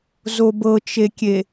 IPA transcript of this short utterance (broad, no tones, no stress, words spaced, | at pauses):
zobɤt͡ʃekʲe